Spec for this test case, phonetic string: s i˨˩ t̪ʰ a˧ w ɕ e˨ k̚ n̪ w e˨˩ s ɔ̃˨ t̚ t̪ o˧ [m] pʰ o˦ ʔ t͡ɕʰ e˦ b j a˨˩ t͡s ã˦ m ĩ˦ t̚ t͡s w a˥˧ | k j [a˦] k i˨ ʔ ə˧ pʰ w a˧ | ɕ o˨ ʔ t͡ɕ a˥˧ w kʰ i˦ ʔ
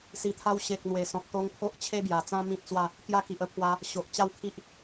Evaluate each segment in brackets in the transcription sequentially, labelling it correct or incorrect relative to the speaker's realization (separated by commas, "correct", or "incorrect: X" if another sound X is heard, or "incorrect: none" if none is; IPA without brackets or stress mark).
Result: incorrect: ŋ, correct